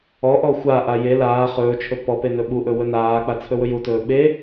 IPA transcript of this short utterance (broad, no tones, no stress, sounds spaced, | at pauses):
ɔ ʔ ɔ xʷ a ʔ a j e l aː χ ɵː t͡ʃʰ ɵ p ɔ p e n ɵ ɓ u ʔ ɵ w ɵ n aː k͡p a t͡sʰ ɵ w ɵ j u t ɵː ɓ e